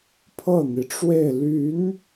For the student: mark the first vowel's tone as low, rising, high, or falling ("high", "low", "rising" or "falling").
falling